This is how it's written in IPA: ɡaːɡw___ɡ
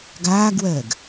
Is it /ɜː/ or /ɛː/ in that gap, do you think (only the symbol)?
ɜː